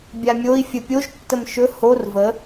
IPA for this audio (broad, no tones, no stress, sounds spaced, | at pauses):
bʲ a mʲ o i̯ fʲ ə pʲ o ʒ tː ə m ʃ ɵ h o r v ə